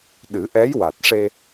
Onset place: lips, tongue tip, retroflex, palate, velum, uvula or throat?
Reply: tongue tip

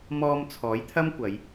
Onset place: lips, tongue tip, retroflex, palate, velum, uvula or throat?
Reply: lips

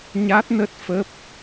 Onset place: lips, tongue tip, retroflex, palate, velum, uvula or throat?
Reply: palate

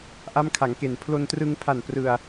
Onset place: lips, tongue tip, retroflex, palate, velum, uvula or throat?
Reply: throat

